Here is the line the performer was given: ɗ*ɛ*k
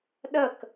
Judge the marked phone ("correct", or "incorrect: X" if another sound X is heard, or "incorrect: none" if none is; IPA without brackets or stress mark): incorrect: ə